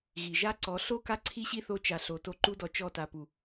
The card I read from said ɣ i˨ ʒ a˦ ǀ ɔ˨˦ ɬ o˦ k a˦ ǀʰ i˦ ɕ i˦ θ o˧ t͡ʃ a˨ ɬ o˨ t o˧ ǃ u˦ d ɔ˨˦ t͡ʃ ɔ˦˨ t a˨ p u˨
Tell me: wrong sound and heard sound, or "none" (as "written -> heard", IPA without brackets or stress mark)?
none